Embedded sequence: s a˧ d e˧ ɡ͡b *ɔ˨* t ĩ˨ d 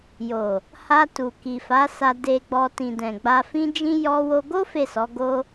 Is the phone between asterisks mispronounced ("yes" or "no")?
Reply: yes